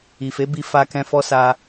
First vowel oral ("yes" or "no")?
yes